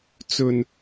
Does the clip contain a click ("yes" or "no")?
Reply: no